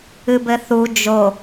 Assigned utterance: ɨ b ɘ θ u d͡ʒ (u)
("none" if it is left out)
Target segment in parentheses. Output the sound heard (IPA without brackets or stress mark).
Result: o